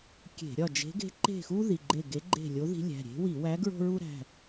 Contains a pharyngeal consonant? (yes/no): no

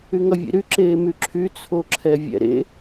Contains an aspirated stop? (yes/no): yes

